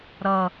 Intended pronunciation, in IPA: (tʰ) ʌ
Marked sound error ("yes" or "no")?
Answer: yes